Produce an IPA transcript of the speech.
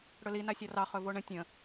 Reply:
ɽɵli nasʲɑrɑ χɵvoɳə̃ tʲə̃

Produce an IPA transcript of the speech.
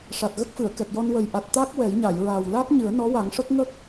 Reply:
ʂa˨˩t̚ɣə˦˥k̚fɨ˨˩˨ə̯kɛ˨˩k̚ jɔ˧nwə˨˩j ʔa˨˩t̚ t̪a˦˥k̚ wɛ˨˩˦jɲa˨˩˨jɹaː˨˩w la˦˥k̚ ɲɨ˨˩˦ə̯nɔ˧˥wa˨˩˦ŋʂə˦˥k̚ ŋə˦˥k̚

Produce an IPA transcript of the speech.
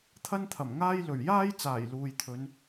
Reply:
t̪ʰɐ˥nt̪ʰɐ˨˩mŋaː˥jlɵ˨˩ɥ jaː˥j t͡saː˨˩j luː˨jt̪ʰɵ˨˧n

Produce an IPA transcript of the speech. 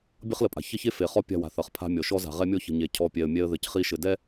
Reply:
bʲʌ˦χlə˨pʼa̤˨ çɐ˦çe˦ fe˨χɔ˦pʲa̤˦˨ wa̤˨ θʌ˨χpʰa̤˦mʲɔ˨ ʃɔ˦ za̤˨ʁɛ˦ mʲɔ˦çə̤˨ ɲe˨cʰɔ˨ pʲɛ˨ə̯mʲɛ˦ə̯ðɘ˨cχi˦ ʃɘ˨dɛ˦

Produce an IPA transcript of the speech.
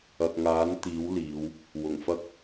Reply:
ɐ˨k̚ŋaː˨˥n t̪iː˨˥wliː˨˧w | wʊ˨˩ŋfɐ˥k̚

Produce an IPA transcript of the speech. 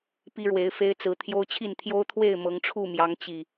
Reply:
pi˦ɻwe˨˦ɪ̯fe˦ɪ̯t͡sɹ̩˨˦ t̪ʰjo˦ʊ̯t͡ɕʰi˥˨n t̪ʰjo˦ʊ̯t̪ʰwe˥˨ɪ̯ mɤ˨˦ŋʈ͡ʂʰu˥˨mjɑ˨˦ŋ t͡ɕi˨˩

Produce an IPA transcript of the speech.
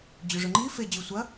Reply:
d͡ʑʉʐɵŋ͡ǃi fe d͡ʑʉsʷɐ

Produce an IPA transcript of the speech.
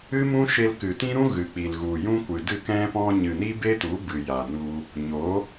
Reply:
ɨ˦mũ˦ʃe˧l kɨ˨tĩ˦ɾũ˦ ɣɨ˨k͡pi˨l ɣu˨jũ˦kʷɨ˨ dɨ˦˨kɛ̃˦pɔ̃˦ ɲɨ˨ni˦be˦tu˨˦ bɨ˨ja˨nu˧ | ɲo˨˦

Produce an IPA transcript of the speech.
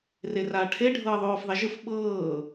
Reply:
reraːʈʰe ɖʱɤːðˤoːfðˤɛʒɯf ɓɤː

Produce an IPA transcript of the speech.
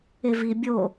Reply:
evi bʲo

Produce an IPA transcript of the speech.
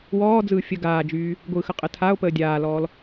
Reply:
wɔː d͡zɯːfʲə ɡaːd͡ʒyː | ɡʷɯːxəqʼə tʰao̯ pəːdʲaːlɔːl

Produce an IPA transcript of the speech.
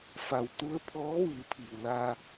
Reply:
fa˩wt̪u˧˥ə̯pʰɔː˧˥ ʋɯː˩˧pʰiː˩w la˧

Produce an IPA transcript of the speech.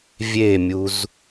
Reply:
vʲemʲuz

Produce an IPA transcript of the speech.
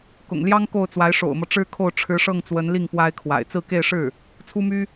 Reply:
kʊ̰˨˩ŋ ljɑ˥ŋ ko˥˩ʊ̯t͡swa˧˥ɪ̯ ʂo̰˨˩ʊ̯mɤ˦ ʈ͡ʂɻ̩˥kʰo˥˩ʊ̯ ʈ͡ʂʰɻ̩˧˥ʂɤ˥˩ŋt͡swə˧˥nli˥˩ŋ pwa˥ɪ̯kʰwa̰˨˩ɪ̯ t͡sɹ̩˥˧ke˥˧ɪ̯ʂɻ̩˥˩ | t͡sʰu˥my˥

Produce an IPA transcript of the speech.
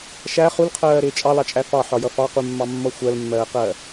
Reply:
ʃæ χulqʰɜːɾɪː t͡ʃʼɑlɑt͡ʃʼæ fɑħɒjʌ fɑqumːɑmːʌ xʷɜlmːɜːqɜ

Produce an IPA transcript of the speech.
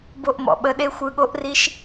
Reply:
bo˧ʔmɔ̰˨ɓə˧ ɗe˦xʷɯ˧ɠo˦ʔri˦ʃ

